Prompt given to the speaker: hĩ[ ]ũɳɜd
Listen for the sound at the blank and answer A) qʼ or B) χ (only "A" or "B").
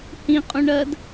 A